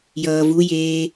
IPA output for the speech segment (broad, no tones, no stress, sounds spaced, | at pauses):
j ʌː v u j eː